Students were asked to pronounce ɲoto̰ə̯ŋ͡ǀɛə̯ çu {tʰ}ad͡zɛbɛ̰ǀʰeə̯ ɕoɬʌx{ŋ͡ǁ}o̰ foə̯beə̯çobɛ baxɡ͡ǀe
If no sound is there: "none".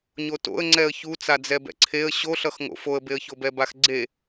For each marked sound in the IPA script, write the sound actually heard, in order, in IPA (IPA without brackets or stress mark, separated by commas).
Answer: t͡s, ŋ